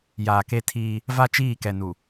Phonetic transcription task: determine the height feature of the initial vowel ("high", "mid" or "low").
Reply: low